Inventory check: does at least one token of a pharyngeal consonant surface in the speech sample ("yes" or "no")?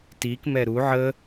yes